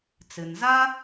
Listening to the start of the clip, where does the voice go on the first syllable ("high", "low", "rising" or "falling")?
low